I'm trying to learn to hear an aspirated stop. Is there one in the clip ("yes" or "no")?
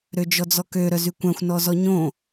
no